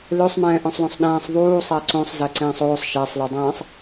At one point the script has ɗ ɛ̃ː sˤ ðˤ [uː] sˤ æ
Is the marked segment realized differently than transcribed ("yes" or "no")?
no